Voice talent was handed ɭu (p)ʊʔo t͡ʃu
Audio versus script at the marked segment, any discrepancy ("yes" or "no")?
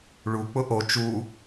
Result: yes